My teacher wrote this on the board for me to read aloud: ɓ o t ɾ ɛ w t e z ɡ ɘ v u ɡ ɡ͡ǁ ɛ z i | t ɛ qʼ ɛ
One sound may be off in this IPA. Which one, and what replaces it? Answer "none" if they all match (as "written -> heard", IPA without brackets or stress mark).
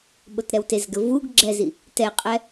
none